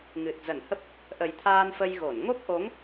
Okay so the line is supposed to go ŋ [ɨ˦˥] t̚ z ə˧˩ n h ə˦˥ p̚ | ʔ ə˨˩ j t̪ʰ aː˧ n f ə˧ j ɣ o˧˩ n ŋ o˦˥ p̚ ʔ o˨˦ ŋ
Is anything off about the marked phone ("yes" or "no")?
yes